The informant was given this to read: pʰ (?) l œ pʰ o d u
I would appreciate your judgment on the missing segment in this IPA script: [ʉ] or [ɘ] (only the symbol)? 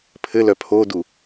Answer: ɘ